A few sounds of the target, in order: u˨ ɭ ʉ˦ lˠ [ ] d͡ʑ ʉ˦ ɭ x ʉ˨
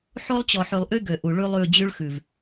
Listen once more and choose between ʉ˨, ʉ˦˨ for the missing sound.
ʉ˦˨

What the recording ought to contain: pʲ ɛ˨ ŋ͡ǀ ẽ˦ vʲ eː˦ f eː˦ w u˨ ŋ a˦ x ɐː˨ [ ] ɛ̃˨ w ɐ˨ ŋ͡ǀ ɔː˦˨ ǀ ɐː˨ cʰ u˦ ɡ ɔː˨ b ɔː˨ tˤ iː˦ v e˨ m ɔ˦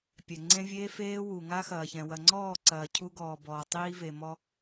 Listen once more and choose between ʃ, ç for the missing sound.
ç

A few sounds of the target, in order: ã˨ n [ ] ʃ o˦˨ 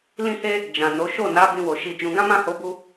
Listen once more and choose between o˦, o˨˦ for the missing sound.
o˨˦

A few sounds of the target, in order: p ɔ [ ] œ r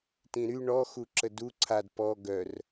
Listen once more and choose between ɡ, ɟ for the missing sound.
ɡ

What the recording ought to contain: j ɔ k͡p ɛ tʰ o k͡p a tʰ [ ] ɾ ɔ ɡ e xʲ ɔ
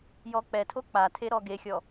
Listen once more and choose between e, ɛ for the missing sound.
e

